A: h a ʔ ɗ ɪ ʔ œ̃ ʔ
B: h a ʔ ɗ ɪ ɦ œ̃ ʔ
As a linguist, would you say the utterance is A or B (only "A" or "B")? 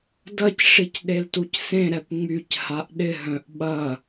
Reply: B